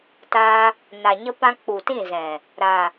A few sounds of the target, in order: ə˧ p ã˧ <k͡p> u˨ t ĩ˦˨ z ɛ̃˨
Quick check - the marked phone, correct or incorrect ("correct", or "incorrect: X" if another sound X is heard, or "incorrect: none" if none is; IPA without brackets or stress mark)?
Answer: correct